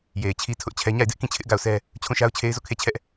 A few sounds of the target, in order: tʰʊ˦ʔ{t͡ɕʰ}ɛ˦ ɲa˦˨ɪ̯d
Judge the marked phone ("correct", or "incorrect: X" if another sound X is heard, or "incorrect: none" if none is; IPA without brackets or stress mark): correct